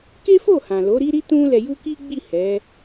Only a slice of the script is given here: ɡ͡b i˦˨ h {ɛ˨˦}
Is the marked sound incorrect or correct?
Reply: correct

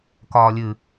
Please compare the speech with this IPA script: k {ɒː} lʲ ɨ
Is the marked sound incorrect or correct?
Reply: correct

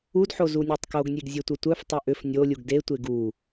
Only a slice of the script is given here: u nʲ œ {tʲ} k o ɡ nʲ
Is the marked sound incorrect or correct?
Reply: incorrect: tˤ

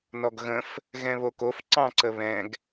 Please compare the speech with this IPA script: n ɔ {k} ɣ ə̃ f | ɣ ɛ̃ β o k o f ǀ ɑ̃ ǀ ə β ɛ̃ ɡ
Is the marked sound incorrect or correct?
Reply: incorrect: ɡ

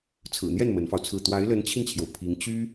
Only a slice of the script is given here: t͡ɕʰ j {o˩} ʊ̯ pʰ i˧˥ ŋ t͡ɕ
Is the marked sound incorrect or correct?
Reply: correct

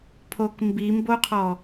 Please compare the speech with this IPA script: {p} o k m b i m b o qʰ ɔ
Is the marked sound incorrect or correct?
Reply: incorrect: pʰ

